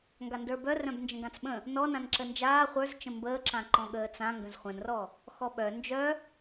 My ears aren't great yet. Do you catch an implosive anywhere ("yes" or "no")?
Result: yes